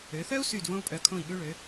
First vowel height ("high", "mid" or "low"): mid